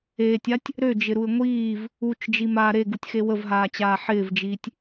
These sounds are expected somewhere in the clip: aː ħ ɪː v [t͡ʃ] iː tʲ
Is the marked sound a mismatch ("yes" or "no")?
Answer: yes